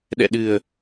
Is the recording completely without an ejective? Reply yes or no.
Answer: yes